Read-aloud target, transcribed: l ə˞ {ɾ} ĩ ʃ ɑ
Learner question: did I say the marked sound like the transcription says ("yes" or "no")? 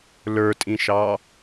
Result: no